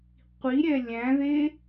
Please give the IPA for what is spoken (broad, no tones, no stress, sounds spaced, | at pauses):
qʷ i ɾʲ ɛ lʲ æ̃ ð e